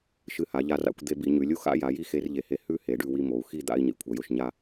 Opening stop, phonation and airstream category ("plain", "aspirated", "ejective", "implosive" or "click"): plain